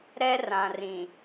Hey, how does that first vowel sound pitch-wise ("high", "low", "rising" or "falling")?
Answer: high